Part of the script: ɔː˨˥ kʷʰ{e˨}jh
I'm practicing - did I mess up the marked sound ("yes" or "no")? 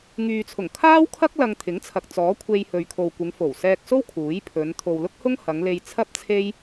yes